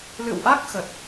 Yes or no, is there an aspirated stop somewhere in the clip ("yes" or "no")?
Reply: no